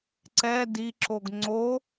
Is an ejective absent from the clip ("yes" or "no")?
yes